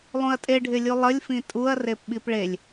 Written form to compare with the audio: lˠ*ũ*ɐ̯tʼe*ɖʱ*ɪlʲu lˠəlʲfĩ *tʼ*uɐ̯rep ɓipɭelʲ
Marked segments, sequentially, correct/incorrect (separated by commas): correct, correct, correct